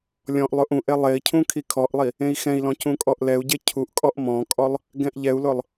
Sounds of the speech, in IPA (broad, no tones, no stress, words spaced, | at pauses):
lʲɔ̃ʔlˠʊʔ ũʔ elˠei̯cʰũ kʰikʰɔʔlˠi | ẽi̯xɛ̃i̯lɔ̃ cũkʼɔʔlɛu̯ɟe cʰuʔkʼɔʔ mɔ̃kʼɔlˠ | ɡɛ̃ʔʎɛu̯lʊlˠ